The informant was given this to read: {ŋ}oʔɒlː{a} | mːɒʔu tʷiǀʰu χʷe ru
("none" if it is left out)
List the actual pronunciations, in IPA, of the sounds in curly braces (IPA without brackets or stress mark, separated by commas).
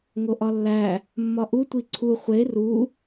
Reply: ŋ, æ